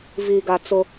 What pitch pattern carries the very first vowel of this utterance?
low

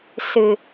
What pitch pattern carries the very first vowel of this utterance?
low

